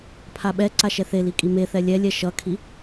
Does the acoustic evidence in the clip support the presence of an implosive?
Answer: yes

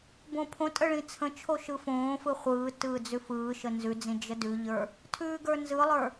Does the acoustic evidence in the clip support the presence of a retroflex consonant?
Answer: yes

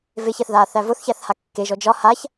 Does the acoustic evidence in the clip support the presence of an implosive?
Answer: no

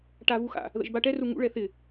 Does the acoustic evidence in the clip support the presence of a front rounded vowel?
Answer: no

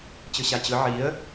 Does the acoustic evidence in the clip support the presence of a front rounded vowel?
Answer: no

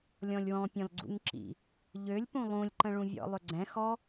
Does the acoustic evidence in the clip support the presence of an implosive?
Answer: no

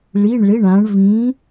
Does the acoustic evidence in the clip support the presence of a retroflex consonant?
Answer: yes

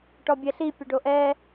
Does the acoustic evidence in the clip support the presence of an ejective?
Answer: no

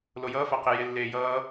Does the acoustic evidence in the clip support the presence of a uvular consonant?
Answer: yes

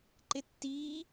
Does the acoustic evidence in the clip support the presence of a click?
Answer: yes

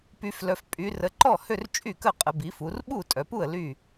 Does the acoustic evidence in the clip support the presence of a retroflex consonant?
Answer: no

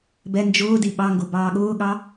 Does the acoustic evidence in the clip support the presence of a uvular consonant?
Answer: no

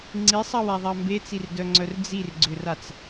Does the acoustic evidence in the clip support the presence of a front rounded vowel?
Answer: yes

